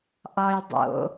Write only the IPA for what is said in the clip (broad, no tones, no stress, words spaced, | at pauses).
ʔɒj dˤo̰